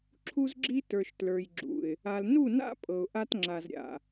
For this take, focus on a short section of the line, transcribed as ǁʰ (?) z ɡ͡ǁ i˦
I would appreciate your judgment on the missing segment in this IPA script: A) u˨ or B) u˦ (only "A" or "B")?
B